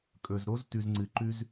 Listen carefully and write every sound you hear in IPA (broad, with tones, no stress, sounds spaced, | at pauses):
kʼ ɵ˨ z ɾ o˧ z t ʉ˨ z ŋ͡ǀ ɨ˨ ǃ ʉ˧ z